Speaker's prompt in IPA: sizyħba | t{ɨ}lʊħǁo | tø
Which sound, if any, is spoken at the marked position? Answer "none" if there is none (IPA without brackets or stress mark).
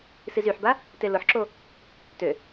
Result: e